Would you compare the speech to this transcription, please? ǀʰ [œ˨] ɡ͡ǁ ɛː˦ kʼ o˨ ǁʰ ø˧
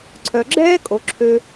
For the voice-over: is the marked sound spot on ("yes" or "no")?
yes